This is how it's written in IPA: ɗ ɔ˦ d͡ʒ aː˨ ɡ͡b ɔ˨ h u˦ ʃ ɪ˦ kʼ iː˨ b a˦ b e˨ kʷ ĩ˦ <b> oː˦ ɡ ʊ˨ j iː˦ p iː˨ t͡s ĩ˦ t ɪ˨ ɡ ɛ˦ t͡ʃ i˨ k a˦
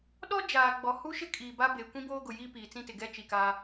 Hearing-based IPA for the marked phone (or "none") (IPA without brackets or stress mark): b